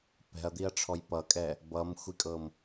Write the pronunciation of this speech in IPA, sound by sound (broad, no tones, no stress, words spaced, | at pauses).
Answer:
pɛ̤ɐ̯d̪iɐ̯ʈ͡ʂʰɔj pʌkʼɛ | bʌmxʷikʼɤm